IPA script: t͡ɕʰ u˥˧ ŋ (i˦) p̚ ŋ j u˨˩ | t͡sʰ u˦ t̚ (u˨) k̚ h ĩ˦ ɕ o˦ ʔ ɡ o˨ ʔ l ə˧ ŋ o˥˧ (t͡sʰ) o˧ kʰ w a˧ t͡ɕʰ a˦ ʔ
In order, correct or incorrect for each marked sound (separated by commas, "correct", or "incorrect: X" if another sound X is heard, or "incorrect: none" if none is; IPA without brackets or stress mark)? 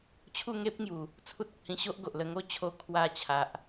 incorrect: e˦, correct, incorrect: t͡ɕʰ